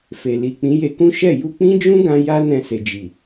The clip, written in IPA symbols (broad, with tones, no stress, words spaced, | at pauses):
fe˨li˨ k͡pĩ˨˦je˧kũ˦ ʃɛ˦˨ ju˧k͡pĩ˦d͡ʒũ˦ɡã˧ ja˦ nɛ̃˧ se˨ d͡ʒi˨